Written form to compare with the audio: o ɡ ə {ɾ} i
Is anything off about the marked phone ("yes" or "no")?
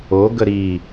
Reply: no